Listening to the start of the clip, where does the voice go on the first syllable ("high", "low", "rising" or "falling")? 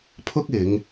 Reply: high